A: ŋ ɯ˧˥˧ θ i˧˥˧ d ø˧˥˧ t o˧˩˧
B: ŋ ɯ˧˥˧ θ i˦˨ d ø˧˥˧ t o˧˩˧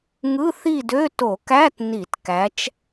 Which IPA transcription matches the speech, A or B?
B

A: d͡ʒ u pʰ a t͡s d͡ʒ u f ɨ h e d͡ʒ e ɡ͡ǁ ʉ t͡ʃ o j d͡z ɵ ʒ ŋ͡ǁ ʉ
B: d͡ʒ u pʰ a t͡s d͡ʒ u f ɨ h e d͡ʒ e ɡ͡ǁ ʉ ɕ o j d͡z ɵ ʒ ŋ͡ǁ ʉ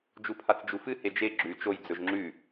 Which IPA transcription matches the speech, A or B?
A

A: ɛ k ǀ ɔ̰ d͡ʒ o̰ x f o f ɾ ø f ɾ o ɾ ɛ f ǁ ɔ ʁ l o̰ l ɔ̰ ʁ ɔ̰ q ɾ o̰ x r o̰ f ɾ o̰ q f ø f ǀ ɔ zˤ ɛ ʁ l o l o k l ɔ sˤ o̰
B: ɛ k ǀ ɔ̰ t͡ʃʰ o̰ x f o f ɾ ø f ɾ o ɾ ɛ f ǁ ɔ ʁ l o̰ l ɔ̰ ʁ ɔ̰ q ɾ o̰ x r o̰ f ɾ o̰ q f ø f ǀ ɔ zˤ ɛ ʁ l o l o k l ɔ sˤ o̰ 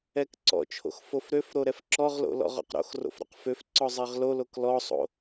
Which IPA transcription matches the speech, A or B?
B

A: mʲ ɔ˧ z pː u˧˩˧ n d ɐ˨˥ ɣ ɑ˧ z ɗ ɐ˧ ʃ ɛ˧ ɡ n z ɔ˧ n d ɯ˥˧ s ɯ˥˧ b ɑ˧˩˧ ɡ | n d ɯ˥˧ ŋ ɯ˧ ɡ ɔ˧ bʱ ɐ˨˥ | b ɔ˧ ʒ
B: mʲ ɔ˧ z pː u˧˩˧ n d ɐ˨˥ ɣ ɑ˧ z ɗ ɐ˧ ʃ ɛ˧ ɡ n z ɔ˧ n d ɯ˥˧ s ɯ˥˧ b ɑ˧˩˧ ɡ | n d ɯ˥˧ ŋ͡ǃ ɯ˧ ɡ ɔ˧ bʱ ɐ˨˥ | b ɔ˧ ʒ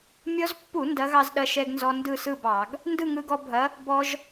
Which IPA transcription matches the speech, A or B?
A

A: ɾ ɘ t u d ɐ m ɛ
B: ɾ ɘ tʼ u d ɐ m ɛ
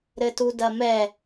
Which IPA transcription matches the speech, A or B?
A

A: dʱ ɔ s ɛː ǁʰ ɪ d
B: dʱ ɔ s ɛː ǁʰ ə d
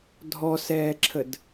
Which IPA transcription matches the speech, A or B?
B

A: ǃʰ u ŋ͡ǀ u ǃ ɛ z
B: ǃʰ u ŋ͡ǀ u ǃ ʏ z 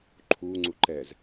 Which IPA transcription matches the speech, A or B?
A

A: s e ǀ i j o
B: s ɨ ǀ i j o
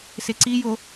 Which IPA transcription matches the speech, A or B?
A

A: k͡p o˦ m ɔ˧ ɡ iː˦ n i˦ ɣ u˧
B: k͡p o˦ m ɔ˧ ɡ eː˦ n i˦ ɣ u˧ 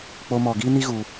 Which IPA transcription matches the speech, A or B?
A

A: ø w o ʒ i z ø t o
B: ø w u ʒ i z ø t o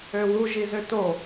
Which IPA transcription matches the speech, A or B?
B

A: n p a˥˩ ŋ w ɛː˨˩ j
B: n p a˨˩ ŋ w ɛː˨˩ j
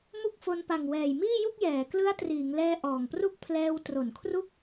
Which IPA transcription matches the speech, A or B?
B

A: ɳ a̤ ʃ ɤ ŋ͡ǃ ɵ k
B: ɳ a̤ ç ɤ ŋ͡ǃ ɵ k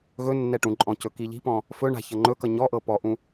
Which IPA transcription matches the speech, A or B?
B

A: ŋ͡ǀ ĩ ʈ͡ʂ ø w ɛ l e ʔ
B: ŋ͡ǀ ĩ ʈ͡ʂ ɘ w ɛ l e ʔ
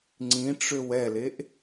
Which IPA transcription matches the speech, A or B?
A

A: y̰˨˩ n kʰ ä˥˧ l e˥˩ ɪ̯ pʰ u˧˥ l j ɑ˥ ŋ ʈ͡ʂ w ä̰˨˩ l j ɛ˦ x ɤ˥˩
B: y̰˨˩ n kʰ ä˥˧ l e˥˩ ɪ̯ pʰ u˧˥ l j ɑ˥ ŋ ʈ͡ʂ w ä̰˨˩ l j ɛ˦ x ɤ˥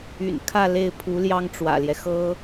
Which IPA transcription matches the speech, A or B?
B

